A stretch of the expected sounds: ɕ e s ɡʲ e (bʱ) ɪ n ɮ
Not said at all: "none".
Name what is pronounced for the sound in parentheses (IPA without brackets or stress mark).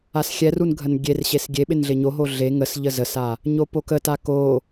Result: ɓ